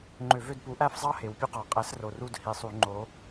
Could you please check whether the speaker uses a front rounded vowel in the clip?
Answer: yes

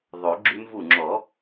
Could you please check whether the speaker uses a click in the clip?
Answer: yes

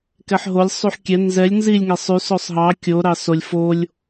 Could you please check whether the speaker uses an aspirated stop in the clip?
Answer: no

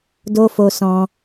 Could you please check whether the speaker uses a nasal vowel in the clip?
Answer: yes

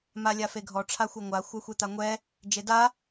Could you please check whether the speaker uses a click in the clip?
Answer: no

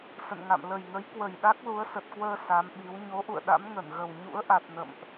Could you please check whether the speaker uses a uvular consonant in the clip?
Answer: no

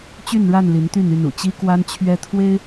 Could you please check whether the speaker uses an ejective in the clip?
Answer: no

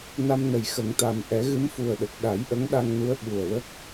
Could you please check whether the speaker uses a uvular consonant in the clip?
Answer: no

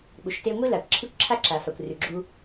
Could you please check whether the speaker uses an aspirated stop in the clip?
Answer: yes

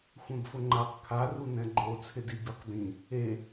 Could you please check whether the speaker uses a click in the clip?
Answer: yes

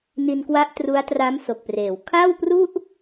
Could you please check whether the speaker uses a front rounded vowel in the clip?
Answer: no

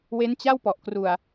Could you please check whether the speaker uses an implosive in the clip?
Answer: no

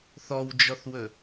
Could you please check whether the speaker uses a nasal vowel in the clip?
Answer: no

